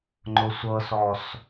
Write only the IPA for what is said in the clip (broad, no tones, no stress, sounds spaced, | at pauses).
ŋ͡ǃ ʊ sʷ ɤ s ɔ s